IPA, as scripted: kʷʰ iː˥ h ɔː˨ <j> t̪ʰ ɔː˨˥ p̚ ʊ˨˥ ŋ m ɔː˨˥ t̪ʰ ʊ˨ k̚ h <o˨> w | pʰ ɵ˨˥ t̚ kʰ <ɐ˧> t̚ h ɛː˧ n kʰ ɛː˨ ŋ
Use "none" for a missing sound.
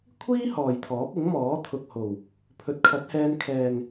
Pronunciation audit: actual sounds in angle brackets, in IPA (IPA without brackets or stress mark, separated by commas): j, o˨˩, ɐ˨˥